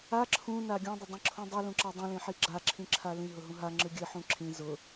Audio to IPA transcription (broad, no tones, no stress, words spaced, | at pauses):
a ǁʰũna ɡʲũdˤʊdˤĩǁʰũ dˤɨlũǁa dˤĩlĩħi ɡ͡ǁaǁʰĩǁʰa lĩɦʊɦũ ɦaŋ͡ǁɨ ɡʲɨħũ ǁʰĩ zʊ